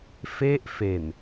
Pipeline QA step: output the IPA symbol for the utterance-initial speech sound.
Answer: f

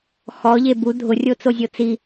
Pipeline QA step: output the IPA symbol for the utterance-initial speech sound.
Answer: x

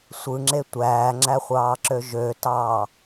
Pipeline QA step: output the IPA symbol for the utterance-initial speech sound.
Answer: sʷ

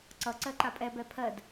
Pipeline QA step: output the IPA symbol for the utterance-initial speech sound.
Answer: ǀ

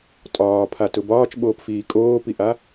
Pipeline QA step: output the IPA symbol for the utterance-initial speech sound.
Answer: tʼ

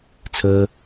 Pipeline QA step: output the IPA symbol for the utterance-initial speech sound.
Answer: t͡sʰ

